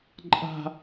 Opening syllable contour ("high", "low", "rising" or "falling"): high